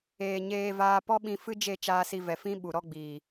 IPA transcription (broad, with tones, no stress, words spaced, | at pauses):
eː˨ɲeː˧vaː˧ pɔ˦ɓĩ˧fɨ˦d͡ʒe˦˨ t͡ʃaː˧si˧vɛ˨fĩ˦ ɓu˨ɾɔ˦ɡ͡biː˨